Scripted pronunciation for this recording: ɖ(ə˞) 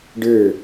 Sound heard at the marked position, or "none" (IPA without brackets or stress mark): ə˞